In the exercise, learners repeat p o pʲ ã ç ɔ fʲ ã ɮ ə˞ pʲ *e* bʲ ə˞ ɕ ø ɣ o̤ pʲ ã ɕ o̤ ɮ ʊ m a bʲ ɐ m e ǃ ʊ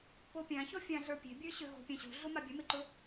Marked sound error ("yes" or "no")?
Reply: yes